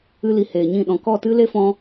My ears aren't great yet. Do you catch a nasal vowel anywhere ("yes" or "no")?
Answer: yes